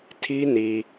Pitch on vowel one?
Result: high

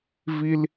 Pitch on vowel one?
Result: high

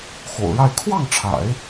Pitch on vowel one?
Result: low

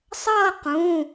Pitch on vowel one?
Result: falling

